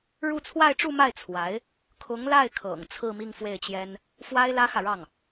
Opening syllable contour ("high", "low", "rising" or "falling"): falling